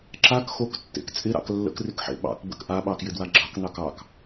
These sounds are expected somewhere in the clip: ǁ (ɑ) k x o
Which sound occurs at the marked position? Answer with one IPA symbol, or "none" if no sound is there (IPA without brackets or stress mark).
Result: a